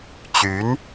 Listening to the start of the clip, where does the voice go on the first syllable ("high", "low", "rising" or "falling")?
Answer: rising